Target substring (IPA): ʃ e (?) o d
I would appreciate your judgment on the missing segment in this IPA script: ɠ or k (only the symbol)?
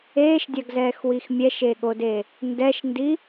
ɠ